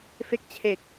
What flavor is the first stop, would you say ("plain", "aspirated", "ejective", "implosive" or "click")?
plain